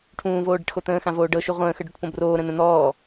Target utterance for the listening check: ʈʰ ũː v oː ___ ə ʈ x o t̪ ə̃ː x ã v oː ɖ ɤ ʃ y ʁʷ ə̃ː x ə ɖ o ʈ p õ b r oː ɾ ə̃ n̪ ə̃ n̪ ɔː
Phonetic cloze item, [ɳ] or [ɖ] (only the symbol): ɖ